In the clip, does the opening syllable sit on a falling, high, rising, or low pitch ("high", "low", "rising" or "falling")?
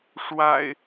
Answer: low